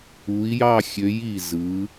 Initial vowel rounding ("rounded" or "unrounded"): rounded